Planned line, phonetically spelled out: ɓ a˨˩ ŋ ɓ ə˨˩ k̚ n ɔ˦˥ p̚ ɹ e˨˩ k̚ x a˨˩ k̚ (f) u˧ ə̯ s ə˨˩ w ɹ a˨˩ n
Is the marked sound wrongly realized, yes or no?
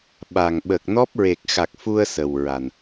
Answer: no